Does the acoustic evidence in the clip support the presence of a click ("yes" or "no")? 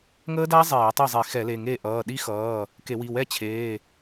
no